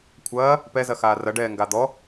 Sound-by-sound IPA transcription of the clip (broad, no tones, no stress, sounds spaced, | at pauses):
kʷʰ ɐː | p ɛ z ɐ x aː r ɐ ɖ ɛː ŋ ɡ a d̪ ɔ